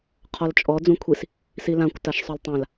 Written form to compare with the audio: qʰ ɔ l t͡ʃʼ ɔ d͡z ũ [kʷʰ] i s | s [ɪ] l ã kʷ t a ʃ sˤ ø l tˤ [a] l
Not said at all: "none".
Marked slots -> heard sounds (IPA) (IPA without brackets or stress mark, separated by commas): kʷʰ, i, ã